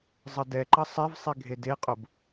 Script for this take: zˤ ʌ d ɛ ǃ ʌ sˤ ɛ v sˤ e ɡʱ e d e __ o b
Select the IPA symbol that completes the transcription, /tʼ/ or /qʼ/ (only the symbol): qʼ